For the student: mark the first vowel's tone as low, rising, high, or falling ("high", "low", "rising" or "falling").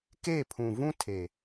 falling